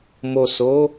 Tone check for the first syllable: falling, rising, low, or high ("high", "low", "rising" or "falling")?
low